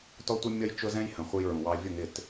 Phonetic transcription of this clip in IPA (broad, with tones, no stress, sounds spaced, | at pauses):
t ɔ˦ tʷ ʌ˦ mʲ ʌ˦ j t͡ʃ ʊ˦ z ɛ̃˦ j h ə̃˨ χʷ ə˦ j ɹ ũ˨ w ɑ˦ vʲ ʊ˦˨ ŋ ɪ˦˨ t